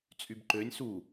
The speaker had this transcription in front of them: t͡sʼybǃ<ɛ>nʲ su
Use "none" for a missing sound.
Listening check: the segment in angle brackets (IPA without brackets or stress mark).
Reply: ø